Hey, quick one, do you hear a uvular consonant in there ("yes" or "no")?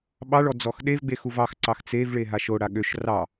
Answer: no